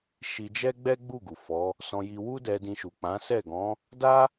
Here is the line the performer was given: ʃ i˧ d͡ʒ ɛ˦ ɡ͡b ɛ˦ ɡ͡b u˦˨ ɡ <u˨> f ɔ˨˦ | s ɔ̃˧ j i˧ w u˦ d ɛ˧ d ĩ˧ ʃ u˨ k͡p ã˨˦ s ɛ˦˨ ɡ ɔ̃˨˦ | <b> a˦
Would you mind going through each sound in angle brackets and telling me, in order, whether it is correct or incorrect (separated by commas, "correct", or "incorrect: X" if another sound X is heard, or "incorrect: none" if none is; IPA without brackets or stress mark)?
correct, incorrect: d